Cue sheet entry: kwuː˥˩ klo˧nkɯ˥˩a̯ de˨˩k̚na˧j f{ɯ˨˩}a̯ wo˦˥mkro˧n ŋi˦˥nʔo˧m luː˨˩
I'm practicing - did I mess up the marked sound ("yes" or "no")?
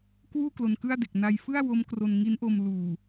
yes